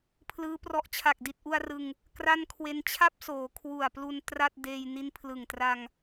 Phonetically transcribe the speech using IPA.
pʰ l ɯː˦˥ p r ɔ˦˥ ʔ t͡ɕʰ a˨˩ k̚ d i˨˩ t̚ ʔ u˧ a̯ r ɯ˧ ŋ | k r a˥˩ n kʰ w e˧ n t͡ɕʰ a˥˩ p̚ s oː˩˦ kʰ w u˨˩ a̯ p l u˧ n t r a˥˩ t̚ d eː˧ j n i˦˥ n pʰ l ɯ˨˩ ŋ t r a˧ ŋ

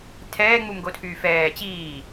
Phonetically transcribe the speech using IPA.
tʰ ɛː ŋ͡m u m ɡ o tʰ yː f ɛː t͡ɕ iː

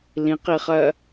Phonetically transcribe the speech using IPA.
l ĩ q i χ ɜ

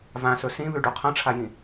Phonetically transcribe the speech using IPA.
v ã s ɵ s ĩ β ʉ ɖ u qʰ ɐ̃ ʈ͡ʂʰ a j ĩ

